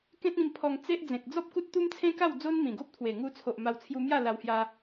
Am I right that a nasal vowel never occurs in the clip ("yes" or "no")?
no